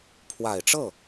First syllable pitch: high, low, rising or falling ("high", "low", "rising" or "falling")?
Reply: low